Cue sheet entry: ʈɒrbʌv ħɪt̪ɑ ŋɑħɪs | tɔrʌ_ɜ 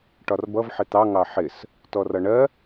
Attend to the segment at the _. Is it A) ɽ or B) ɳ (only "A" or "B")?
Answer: B